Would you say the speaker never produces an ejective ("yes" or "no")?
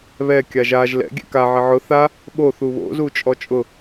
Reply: no